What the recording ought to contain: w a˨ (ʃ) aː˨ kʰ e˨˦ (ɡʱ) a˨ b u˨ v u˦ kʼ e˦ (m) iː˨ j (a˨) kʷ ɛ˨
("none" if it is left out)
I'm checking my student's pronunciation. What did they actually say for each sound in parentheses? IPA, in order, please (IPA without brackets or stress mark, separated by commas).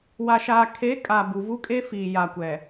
ʃ, kʼ, f, a˨